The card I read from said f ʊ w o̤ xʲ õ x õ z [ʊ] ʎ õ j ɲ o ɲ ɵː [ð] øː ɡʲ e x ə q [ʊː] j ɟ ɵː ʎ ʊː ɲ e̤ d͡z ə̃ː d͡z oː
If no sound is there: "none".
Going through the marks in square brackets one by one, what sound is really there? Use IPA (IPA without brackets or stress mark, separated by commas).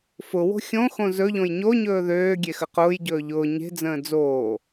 ɵ, ð, ʊː